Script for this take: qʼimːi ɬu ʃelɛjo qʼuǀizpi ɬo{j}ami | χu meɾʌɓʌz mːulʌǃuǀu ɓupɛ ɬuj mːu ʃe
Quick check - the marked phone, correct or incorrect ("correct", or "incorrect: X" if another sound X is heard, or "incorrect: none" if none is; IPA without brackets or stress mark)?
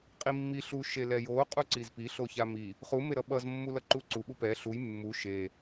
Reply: incorrect: ç